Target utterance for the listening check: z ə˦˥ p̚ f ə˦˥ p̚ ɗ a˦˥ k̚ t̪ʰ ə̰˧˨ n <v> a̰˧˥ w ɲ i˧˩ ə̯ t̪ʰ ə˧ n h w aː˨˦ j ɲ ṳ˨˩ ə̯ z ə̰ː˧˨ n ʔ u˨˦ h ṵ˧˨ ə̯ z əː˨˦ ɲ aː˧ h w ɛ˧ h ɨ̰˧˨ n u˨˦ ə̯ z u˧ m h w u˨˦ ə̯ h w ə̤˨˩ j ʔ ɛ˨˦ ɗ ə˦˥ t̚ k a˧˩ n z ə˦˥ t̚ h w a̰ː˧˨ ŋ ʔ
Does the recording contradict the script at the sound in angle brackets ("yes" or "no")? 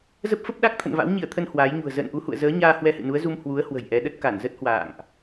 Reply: no